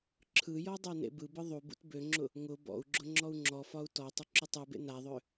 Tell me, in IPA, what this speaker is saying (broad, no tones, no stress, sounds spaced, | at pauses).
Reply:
ǁʰ ɯ j ɔ dˤ a n ḛ b ɯ b ɯ ðˤ u b ṵ t b ø ŋ͡ǁ ʊ | ŋ ʊ b ɔ̰ u̯ ɡ͡ǁ ʊ ŋ͡ǁ ɔ u̯ ŋ͡ǁ ɔ f ɒ u̯ t ɔ tˤ ʊ ǁ ʊ tˤ u b ḛ n a ðˤ ø